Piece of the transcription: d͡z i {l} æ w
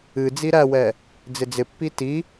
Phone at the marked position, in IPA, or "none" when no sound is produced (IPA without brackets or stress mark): ɾ